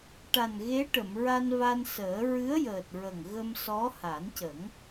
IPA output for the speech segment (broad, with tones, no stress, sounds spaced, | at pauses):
ʈ a˨˩ n ɣ e˧˥ ʈ ə˨˩˨ m ɹ a˧ n v a˧ n s əː˨˩˦ ɹ ɨ˧˥ ə̯ j əː˨˩ t̚ ɹ ə˨˩ ŋ ɣ ə˧ m s ɔ˧˥ h a˨˩˦ n c ə˨˩˦ ŋ